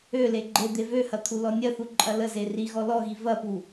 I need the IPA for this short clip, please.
ø l e ɡ͡ǃ e d̪ e v ø h ɐ t̪ʰ u l ɔ nʲ ɐ θ u ǃʼ ɐ l ə z e r i ɣ ɔ l ɔ ɣ i v ɐ p u

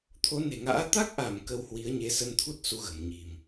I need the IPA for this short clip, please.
t̪ʰ o˨˦ n e̤˨˩ ŋ a̰ː˧˥ t̪ a˦˥ k̚ ʔ a˧˩ m k ə˧ w h w i˨˦ ə̯ ɲ e˨˦ s ə˧ n t̪ʰ u˦˥ t̚ s u˨˦ ɣ ə̤˨˩ m ɲ i̤˨˩ m

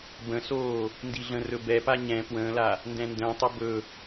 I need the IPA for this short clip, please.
b ə̃ s oː | n d i ɮ ə̃ r ɵ b ɛ p a ɲ ɛ̃ p w ə̃ː l a | n d ɛ̃ n d ə̃ː tˤ o b ɵ

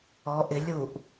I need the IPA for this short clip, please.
ɔ ʔ ɪ lʲ u ʔ

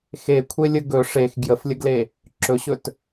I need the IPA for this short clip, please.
x e kʷʰ e lʲ ə ɡ ɵ ʂ e x ɡ j ə f lʲ ə ɡ l e | ǁ ɵ ɕ ɵ t

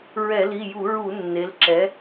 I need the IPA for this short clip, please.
ɹ ɛ˧˩˧ l i˩˧˩ j u˧˩˧ ɹ u˧˩˧ nː e˩˧ l ǁ ɛ˩˧

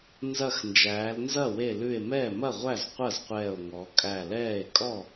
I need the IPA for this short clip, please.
n z ɐ˧˩ x n d͡ʒ æː˩˧ l n z ɐ˥˩ w e˧˩ l ʉ˧˩ e̯ m ɛː˥˩ m ɐ˥˩ ʁʷ æ˥˩ z qʷ ɐ˥˩ z qʷ ɛː˧˩ o̯ ŋ ɔ˩˧ kʼ æ˧˩ l ɛː˥˩ e̯ kʼ ɔ˥˩

